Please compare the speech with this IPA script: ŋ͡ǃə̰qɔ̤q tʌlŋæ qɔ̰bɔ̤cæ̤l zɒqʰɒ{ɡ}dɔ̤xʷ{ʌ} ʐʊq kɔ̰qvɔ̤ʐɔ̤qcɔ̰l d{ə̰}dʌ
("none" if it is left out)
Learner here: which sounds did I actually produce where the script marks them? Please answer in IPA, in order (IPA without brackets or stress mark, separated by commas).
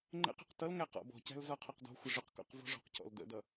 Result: q, ʌ, ə̰